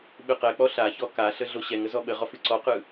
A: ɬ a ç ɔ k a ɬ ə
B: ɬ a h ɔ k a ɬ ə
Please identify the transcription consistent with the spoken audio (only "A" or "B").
A